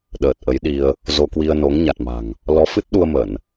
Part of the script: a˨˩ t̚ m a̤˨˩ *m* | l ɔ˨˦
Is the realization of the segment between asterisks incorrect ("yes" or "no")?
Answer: yes